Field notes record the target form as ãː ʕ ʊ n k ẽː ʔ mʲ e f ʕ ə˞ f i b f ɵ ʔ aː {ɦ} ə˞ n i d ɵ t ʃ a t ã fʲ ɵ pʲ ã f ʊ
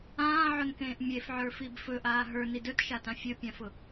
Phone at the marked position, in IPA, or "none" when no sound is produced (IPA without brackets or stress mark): ɦ